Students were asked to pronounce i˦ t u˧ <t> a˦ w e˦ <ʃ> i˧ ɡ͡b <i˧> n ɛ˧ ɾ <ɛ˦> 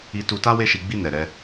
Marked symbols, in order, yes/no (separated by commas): yes, yes, no, yes